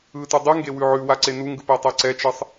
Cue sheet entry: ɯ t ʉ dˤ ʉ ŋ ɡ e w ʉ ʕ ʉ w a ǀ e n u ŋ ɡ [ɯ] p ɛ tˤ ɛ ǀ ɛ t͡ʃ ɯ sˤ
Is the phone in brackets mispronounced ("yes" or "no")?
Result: no